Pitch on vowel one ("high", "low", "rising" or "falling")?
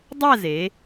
falling